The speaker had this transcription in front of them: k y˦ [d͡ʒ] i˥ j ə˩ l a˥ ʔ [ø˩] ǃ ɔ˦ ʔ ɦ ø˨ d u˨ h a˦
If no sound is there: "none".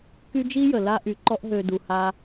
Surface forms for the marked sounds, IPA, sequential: d͡ʒ, y˩

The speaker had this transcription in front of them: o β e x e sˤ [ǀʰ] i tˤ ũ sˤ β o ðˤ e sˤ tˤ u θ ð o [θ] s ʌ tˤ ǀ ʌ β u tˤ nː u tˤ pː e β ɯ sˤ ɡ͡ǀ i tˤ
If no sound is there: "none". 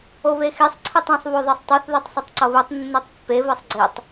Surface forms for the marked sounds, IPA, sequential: ǀʰ, tˤ

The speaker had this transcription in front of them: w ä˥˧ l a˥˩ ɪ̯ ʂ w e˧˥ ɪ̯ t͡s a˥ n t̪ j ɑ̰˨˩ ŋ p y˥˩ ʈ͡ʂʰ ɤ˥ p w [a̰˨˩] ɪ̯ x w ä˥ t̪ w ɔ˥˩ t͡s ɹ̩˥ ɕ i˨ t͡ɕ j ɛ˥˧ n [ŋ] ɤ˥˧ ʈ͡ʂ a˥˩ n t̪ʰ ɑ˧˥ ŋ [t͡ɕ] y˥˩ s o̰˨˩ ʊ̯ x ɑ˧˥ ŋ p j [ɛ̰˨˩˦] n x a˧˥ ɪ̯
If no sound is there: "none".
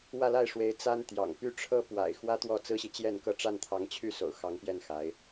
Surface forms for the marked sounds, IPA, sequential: a̰˨˩, k, t͡ɕʰ, ɛ˥˩

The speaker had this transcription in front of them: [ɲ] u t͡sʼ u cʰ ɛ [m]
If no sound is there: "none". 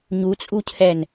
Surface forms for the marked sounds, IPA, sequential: ɲ, n

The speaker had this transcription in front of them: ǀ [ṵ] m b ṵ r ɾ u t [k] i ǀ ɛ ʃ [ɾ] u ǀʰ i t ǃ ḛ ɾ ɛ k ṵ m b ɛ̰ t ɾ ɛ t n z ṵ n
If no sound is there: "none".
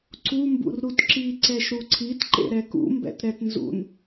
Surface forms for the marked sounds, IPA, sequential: u, ǁ, ɾ

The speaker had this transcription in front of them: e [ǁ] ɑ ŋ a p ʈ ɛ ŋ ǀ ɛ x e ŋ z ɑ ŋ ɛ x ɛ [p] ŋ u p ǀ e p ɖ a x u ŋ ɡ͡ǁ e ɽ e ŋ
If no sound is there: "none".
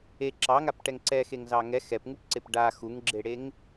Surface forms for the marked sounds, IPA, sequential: ǁ, p

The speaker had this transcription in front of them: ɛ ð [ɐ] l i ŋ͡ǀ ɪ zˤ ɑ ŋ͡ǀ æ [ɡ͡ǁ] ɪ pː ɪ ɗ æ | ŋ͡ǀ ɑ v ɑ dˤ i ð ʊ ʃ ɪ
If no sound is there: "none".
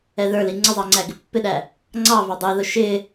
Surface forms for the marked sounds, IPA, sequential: ə˞, ɡ

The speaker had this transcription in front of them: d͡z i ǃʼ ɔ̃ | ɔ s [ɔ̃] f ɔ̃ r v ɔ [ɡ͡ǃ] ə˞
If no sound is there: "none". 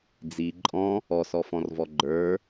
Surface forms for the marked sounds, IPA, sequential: ɔ, ɡ͡ǃ

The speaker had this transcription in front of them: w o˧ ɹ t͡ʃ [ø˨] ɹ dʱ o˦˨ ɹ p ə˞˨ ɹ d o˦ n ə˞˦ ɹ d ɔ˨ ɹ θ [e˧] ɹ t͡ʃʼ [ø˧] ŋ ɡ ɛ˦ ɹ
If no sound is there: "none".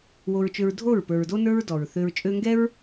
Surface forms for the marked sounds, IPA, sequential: ø˧, ø˧, ø˧

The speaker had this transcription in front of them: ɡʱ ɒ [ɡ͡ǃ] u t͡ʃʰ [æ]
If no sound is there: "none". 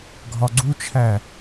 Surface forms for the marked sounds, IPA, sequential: ɡ͡ǀ, æ

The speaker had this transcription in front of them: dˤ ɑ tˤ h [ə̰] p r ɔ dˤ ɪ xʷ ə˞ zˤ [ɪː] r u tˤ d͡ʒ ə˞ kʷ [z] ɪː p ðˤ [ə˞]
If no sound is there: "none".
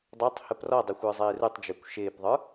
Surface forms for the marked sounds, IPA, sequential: ə, ɪː, ʃ, ə˞

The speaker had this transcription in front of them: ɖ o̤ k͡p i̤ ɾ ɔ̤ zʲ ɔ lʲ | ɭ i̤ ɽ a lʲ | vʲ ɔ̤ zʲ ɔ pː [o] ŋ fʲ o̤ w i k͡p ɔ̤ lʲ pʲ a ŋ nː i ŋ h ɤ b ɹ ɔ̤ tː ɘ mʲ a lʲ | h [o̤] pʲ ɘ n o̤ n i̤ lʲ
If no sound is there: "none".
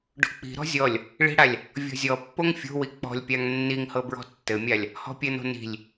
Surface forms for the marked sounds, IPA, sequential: o, ɔ̤

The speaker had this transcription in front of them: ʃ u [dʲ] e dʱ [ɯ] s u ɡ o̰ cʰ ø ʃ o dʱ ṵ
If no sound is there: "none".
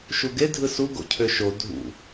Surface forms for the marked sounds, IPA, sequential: ɡ, ɯ

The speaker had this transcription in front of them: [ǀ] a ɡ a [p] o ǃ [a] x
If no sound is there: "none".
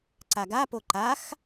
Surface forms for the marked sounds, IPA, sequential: ǀ, p, a

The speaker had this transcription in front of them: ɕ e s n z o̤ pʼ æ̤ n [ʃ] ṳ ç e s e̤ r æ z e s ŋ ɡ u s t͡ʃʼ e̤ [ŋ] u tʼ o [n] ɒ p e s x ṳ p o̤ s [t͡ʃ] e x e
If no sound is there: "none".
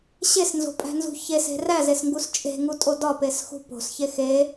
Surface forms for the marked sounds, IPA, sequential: z, ŋ, d, ç

